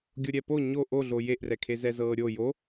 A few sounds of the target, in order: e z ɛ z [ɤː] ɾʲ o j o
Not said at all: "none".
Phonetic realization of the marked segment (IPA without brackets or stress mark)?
ɤː